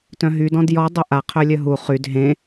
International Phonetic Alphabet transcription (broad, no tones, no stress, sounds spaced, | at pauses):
t œ̃ ɦ y d ɔ̃ d j ɔ dˤ o ʔ a qʰ œ lʲ œ ɦ u χ y d ɦ ẽ